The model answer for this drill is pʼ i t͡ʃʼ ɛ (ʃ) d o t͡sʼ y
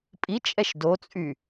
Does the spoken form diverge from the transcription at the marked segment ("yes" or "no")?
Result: no